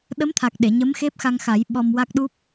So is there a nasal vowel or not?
no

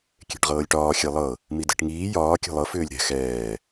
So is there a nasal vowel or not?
no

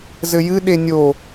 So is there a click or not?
no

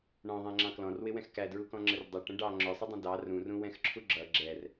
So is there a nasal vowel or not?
yes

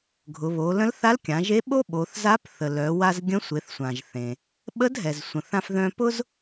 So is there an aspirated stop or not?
no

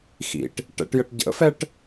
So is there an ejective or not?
no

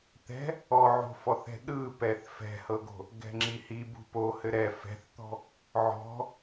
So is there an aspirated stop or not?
no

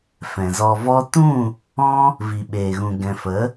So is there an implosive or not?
yes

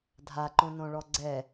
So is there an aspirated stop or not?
no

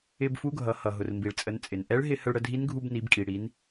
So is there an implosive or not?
no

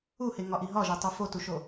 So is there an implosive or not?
no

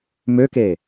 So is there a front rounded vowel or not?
yes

